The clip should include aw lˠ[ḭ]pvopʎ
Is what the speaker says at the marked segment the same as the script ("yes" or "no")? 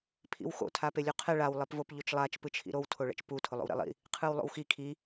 no